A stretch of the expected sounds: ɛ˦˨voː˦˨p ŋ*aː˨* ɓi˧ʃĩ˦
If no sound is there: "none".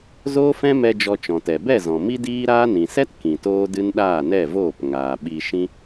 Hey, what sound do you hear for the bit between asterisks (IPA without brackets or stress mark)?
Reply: aː˨